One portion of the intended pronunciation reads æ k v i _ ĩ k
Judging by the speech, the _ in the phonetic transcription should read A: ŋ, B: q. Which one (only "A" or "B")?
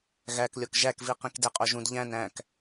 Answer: B